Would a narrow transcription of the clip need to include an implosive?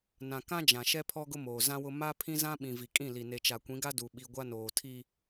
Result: yes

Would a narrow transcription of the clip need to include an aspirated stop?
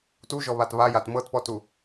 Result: no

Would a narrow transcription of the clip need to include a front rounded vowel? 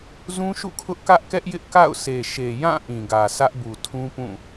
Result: no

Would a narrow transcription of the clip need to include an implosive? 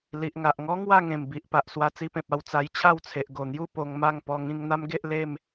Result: no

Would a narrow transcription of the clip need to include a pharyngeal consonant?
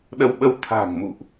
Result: no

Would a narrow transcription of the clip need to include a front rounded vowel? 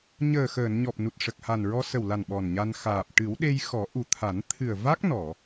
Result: no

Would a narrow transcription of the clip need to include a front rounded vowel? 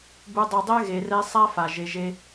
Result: yes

